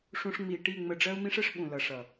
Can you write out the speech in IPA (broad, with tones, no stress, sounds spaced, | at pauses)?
ʂ ũ˦ ʂ ŋ͡m i˧ ʈ i˦˨ ŋ͡m ə˧ ɖ͡ʐ ɜ˦ u̯ m ĩ˦ ʂ ə˦ ʂ ɓ ũ˨ l ʌ˨ ʂ ʌ˨